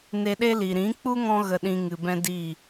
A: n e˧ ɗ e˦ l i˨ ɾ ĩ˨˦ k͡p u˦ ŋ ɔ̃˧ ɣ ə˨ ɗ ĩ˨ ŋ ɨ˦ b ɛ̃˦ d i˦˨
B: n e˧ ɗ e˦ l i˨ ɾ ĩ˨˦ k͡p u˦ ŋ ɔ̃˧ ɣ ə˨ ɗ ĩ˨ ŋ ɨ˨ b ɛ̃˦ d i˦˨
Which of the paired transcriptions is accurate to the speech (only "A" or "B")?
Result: B